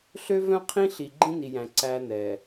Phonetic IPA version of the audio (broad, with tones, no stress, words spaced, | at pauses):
ɬø˦ vœ̃˦qʰĩ˦ ɬi˨ɡ͡ǃĩ˦ni˨jæ̃˨ ǀæ˦nɛ˨